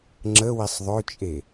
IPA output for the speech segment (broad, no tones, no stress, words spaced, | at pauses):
ŋ͡ǁəwisˤ ðˤøt͡ʃʼe